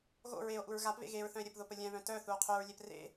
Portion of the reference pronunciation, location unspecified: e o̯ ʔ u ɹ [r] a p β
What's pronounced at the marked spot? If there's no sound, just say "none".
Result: ɣ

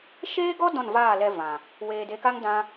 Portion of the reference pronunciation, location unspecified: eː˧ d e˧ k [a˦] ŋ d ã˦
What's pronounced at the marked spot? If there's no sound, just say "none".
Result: a˦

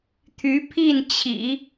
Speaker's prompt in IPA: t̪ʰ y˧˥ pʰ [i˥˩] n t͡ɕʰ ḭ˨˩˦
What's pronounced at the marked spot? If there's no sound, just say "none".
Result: i˥˩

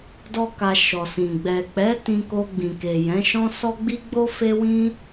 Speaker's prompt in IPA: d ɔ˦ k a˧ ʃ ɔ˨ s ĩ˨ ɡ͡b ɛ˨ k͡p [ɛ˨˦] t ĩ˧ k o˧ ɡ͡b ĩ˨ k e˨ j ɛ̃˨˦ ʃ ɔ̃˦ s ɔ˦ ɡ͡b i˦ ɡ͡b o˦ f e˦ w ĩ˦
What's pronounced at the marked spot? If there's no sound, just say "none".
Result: ɛ˨˦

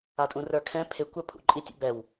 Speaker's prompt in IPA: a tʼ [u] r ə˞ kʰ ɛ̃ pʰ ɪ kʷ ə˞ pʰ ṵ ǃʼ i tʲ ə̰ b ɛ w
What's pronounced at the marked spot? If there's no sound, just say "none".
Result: ũ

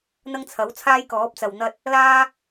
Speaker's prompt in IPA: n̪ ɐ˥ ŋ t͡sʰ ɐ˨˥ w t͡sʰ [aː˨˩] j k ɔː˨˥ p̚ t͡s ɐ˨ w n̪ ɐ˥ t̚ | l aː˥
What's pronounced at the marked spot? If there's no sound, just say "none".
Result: aː˥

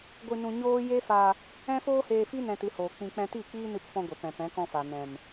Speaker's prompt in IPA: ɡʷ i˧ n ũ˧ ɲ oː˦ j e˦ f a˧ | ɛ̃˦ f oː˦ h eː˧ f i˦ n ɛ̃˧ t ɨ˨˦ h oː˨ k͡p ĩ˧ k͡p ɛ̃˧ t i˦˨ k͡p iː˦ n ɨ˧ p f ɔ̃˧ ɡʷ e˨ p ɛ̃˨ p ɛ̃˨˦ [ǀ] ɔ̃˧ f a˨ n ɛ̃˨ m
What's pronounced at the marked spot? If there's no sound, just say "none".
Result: k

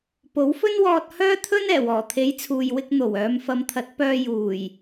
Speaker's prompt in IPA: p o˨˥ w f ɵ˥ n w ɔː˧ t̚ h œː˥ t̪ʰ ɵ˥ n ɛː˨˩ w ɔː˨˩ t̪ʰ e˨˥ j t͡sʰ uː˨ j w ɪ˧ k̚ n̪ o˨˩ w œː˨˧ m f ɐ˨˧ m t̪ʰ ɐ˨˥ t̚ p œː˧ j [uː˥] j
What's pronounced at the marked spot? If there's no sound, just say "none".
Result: uː˨˩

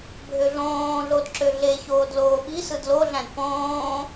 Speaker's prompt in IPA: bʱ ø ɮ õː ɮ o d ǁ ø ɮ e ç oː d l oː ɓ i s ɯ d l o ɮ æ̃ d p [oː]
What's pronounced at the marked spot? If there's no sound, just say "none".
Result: õː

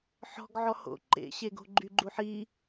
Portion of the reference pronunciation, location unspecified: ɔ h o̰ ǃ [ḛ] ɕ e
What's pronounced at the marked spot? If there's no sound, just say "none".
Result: ḛ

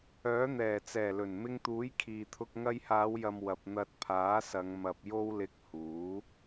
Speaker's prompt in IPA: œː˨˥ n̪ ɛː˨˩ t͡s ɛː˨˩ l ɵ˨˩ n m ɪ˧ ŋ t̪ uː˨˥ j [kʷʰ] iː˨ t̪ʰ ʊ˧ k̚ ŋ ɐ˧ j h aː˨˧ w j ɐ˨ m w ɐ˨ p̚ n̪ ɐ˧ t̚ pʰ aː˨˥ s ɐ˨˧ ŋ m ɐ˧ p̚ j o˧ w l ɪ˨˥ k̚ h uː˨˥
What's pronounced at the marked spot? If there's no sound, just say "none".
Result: kʰ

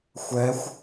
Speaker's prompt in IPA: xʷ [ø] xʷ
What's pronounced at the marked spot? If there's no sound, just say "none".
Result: ɛ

